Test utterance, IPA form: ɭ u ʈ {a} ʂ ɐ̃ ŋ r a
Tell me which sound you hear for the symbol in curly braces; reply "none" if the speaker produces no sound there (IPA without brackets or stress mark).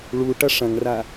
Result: ɐ